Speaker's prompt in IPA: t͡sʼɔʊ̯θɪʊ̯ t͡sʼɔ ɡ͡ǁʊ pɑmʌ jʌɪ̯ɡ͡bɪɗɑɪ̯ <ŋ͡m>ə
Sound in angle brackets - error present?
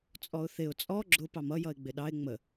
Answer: no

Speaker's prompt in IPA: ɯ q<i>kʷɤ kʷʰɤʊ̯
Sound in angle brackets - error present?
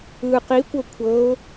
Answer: no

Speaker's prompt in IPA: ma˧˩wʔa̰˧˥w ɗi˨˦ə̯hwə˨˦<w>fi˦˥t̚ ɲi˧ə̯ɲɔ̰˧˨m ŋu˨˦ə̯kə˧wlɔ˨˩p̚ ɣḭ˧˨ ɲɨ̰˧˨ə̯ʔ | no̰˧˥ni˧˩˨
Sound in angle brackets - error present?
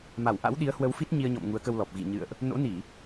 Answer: no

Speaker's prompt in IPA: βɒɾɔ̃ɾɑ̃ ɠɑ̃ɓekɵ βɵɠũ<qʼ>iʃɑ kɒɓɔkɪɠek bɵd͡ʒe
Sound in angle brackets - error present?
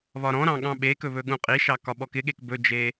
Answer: no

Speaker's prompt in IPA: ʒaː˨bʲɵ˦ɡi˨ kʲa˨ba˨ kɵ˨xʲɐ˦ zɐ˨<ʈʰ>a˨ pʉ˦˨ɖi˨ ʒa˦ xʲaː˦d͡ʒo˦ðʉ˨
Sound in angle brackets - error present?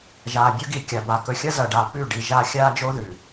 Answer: yes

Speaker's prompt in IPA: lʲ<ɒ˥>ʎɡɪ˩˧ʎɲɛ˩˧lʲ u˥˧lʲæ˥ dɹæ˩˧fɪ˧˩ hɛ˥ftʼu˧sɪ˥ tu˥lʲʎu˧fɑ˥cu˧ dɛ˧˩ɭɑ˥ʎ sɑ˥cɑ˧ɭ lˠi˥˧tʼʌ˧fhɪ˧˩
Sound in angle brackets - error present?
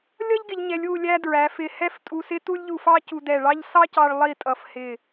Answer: yes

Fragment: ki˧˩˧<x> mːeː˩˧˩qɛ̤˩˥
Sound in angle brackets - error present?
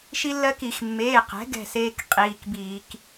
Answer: no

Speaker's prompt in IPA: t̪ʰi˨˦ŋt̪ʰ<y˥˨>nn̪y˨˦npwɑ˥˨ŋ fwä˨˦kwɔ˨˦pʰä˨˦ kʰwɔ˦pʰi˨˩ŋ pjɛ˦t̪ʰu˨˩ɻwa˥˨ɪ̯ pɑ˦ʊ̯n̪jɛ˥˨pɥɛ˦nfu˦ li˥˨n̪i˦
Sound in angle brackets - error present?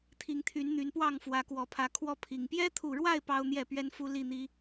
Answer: yes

